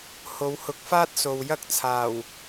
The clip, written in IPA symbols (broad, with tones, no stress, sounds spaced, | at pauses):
h o˨˧ w h ʊ˨˥ k̚ f aː˥ t̚ s o˨ w j ɐ˥ k̚ t͡sʰ aː˨˩ w